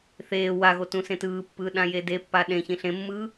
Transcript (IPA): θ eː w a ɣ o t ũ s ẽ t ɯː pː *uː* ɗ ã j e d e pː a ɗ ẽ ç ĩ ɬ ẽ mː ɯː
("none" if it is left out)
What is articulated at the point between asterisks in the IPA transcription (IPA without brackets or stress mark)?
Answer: ɯː